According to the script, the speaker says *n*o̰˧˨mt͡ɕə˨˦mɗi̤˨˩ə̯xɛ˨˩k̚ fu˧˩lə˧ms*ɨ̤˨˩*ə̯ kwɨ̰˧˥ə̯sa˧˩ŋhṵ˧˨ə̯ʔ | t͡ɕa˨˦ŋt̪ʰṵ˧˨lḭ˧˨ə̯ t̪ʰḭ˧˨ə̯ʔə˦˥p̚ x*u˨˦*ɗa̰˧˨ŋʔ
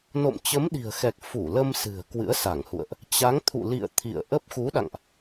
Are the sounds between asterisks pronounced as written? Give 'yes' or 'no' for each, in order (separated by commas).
yes, yes, yes